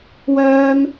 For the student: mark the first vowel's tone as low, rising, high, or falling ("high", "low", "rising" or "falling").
high